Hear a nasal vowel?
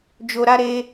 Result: no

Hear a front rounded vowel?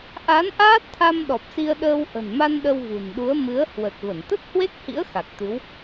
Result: no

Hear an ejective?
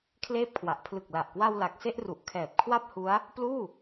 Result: no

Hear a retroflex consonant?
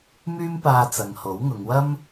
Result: no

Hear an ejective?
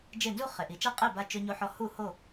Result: yes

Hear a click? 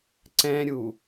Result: yes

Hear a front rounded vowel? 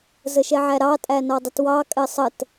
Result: no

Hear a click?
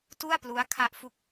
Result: no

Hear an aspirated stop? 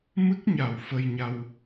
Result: no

